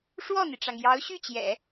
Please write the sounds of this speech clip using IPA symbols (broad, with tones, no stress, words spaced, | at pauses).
ʂwɔ˥˩n̪i˩ʈ͡ʂɑ˩ŋ jɑ˧˥ʊ̯ɕy˥˩t͡ɕjɛ̰˨˩˦